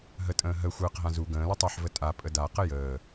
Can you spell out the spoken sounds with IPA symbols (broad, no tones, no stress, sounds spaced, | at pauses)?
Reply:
ɦ ə tʼ ə̃ː ɦ ə xʷ əː q ɦ ã z u ɡ ə̃ː l ə tˤ æ ħ v ə tʼ a pʼ ə d a q ə j əː